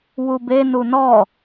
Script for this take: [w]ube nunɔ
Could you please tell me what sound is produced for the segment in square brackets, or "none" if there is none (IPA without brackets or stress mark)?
w